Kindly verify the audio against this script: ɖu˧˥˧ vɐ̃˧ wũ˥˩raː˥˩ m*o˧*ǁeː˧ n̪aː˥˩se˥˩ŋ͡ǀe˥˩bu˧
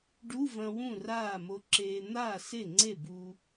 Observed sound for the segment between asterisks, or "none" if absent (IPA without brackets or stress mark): o˧